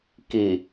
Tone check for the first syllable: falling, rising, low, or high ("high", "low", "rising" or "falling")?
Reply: low